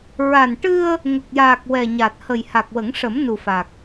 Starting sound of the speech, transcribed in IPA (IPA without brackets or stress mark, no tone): ɹ